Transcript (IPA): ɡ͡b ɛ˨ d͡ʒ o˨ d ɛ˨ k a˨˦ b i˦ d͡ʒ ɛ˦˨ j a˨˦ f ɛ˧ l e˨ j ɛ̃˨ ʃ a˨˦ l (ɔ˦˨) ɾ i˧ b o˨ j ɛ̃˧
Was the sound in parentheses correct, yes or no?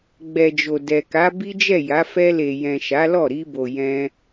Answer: yes